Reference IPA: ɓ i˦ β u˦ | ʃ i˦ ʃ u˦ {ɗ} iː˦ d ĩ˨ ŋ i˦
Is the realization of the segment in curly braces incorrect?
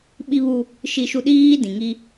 no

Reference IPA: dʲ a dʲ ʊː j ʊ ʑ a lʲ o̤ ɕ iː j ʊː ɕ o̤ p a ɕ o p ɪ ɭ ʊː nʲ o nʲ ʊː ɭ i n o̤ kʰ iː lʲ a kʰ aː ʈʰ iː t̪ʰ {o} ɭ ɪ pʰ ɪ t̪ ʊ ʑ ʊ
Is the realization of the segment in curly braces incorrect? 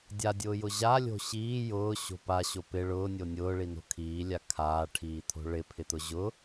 yes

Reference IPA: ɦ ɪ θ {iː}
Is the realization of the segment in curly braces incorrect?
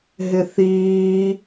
no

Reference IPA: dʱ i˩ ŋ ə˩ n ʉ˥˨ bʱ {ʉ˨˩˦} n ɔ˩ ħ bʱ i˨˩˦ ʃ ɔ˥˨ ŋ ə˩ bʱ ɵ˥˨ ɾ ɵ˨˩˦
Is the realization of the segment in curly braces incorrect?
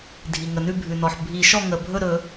yes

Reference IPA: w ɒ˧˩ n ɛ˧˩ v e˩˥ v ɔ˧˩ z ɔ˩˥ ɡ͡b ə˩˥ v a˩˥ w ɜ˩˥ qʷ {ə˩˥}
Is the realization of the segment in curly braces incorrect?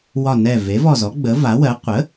no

